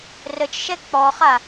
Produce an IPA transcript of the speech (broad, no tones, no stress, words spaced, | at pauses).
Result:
rət͡ʃʃɛ k͡pɔχa